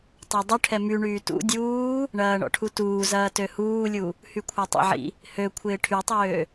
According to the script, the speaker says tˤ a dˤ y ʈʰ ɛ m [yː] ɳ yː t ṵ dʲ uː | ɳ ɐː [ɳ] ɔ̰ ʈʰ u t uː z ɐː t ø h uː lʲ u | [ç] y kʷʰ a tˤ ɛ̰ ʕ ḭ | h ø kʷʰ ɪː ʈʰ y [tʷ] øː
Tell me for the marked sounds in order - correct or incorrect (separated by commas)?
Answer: incorrect, correct, incorrect, incorrect